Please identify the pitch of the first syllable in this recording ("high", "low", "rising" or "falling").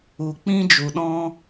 low